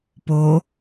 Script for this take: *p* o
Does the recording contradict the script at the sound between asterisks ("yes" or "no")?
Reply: no